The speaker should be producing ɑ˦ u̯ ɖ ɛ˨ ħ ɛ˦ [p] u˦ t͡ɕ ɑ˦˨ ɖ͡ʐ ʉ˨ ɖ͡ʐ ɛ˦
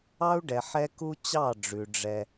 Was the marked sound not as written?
yes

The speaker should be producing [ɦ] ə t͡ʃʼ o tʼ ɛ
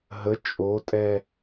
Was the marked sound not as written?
no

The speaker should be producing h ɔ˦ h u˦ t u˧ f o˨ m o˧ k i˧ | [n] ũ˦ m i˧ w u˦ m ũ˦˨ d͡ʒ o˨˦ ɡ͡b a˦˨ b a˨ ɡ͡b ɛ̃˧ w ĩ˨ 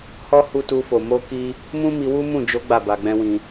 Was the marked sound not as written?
yes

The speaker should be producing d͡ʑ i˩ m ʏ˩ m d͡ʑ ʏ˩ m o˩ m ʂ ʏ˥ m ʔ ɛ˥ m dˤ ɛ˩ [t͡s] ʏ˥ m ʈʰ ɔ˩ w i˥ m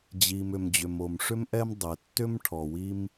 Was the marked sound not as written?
yes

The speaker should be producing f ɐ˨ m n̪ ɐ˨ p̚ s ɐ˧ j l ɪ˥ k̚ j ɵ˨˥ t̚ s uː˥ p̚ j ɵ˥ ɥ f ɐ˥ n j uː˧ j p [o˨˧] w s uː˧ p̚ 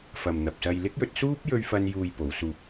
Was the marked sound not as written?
no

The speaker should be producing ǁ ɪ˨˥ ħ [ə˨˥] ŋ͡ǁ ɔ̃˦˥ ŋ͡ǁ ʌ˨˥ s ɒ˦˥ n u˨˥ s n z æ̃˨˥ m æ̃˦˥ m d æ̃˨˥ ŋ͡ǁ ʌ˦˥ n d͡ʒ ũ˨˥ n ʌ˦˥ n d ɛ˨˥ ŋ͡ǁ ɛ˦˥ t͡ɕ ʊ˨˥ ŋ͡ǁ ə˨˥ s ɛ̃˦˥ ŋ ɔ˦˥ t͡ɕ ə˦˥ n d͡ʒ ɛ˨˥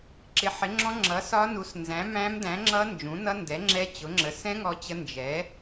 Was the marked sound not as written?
yes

